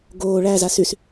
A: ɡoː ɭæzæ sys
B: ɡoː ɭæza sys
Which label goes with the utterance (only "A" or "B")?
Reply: B